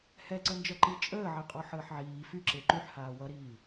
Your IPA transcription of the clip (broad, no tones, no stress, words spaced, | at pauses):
hɛǀə nd͡ʒʌǃi t͡ʃʼəːʕe qʼɔħəːħʕiː fyǁe ǃyħhaː wʌɾiː